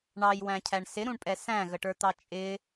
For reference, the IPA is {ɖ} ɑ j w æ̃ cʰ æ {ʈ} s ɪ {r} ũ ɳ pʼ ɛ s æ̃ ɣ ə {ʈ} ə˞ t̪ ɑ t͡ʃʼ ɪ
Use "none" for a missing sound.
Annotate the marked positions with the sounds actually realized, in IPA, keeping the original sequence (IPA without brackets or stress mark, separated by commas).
ɳ, ɳ, ɾ, ʈ